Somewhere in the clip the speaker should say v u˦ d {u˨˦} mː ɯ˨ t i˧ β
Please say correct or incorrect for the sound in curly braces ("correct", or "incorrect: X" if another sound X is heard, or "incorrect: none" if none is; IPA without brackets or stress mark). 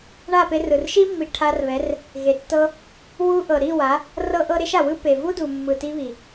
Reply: incorrect: u˨